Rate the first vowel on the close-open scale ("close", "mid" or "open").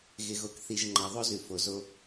close